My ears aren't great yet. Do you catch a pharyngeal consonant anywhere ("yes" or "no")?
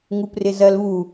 no